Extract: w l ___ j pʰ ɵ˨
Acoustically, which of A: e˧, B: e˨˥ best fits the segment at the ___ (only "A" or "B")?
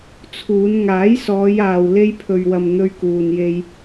A